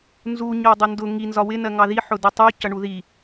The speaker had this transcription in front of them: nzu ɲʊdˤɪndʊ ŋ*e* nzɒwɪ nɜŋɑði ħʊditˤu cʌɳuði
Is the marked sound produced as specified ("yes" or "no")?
no